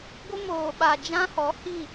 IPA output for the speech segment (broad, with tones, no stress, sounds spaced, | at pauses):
ɡʷ ɪ˦ m oː˨ ɓ a˨ d͡ʒ ã˦ h ɔ˨˦ h i˦˨